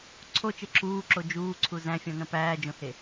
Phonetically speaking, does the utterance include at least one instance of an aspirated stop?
yes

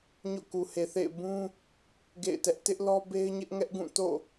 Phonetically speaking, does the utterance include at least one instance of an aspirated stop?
no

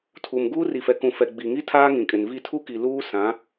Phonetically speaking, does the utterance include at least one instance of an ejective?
yes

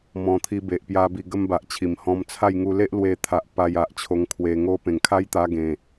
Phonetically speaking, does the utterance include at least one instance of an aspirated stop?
yes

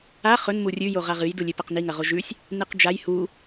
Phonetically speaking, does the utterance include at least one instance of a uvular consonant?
yes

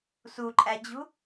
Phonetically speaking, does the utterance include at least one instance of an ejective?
yes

